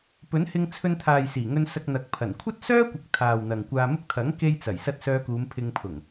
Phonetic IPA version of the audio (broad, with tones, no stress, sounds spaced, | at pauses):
p ɵ˨˥ n h ɪ˧ ŋ t͡sʰ ɵ˧ n t̪ʰ aː˨ j s iː˨˩ ŋ ɵ˧ n s ɐ˧ k̚ n̪ ɐ˨˥ k̚ pʰ ɐ˨˩ n kʷʰ ɐ˥ t̚ s œː˥ kʷ ɪ˨˥ k̚ t̪ʰ aː˨ w n̪ ɐ˨ ŋ kʷ aː˧ m ʊ˥ k̚ t̪ʰ ɐ˨˥ ŋ k e˧ j t͡s ɐ˨˩ j s ɐ˧ t̚ s œː˧ k uː˨˧ m pʰ ɪ˧ ŋ pʰ ʊ˨˩ ŋ